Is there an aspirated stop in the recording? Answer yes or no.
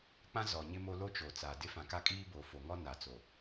no